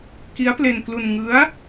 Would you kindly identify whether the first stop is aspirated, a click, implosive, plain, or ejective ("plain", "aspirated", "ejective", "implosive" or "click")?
plain